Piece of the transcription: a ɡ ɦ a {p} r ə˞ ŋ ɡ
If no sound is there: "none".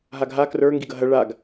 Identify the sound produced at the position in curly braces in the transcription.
k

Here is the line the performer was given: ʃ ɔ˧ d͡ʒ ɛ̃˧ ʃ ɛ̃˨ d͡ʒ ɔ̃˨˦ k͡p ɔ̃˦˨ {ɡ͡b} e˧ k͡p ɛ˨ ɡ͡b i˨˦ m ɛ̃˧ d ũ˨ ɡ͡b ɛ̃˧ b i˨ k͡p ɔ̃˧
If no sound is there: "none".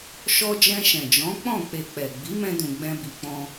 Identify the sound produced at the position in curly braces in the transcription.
k͡p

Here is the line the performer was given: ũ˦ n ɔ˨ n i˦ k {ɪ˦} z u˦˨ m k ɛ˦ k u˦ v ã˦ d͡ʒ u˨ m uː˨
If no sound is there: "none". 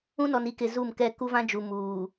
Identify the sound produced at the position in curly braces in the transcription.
ɪ˨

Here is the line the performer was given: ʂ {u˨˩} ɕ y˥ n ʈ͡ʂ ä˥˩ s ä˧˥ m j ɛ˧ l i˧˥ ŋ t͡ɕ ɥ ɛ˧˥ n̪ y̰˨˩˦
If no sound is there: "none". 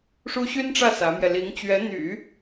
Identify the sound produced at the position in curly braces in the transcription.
u˥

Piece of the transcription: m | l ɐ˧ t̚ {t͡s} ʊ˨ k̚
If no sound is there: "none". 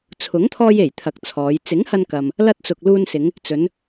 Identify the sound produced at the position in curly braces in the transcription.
t͡s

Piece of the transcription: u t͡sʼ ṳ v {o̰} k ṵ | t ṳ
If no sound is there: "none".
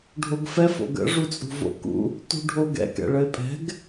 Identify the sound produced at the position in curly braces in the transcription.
o̰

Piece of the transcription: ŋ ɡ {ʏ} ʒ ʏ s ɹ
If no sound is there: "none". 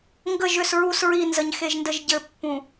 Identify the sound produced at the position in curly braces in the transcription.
ə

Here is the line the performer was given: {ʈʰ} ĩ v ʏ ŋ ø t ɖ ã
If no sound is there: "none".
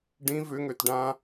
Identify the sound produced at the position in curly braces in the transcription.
ɖ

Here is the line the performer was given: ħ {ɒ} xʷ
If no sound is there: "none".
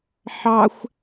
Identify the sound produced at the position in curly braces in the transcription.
ɑ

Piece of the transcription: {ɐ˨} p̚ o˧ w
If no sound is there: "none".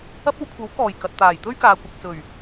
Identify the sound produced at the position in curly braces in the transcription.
ɐ˧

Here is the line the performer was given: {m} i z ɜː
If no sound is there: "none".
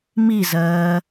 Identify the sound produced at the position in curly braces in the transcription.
m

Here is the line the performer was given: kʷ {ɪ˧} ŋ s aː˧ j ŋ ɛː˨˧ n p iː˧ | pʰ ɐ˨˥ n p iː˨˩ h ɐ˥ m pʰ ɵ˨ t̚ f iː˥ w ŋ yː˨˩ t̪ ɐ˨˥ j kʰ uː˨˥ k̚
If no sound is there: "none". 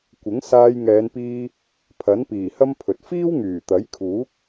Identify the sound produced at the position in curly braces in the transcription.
ɪ˨˥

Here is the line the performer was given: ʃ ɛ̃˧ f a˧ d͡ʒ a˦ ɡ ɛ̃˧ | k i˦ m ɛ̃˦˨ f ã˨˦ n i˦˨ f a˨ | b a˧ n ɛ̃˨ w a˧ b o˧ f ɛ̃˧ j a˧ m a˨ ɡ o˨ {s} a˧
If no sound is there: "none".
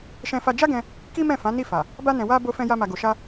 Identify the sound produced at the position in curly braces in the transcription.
ʃ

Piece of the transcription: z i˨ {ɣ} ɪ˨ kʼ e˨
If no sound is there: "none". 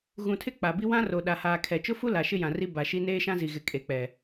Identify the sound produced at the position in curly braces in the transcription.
ɣ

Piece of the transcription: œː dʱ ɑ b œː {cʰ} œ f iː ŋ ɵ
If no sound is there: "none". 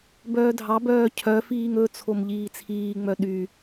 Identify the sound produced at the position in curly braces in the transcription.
cʰ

